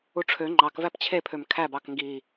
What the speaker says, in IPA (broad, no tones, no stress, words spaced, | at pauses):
uʈ͡ʂʰø ŋ͡ǃɑk væpt͡ɕʰepʰøm kʰæb ɑkŋɡi